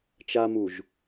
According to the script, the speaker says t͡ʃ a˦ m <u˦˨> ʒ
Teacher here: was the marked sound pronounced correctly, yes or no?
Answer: no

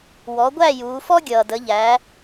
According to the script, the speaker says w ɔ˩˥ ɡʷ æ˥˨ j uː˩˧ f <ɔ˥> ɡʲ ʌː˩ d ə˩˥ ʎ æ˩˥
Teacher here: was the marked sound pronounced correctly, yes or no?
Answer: yes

